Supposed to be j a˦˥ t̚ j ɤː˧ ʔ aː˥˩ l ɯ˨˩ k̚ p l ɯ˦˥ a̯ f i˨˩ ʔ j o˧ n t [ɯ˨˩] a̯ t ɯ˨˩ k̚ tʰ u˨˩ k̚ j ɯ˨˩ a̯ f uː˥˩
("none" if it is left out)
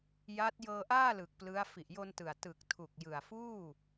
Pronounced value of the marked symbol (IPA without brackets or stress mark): ɯ˨˩